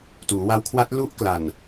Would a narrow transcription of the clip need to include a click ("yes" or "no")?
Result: no